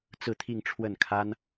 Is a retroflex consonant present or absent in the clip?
present